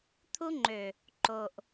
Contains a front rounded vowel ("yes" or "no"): yes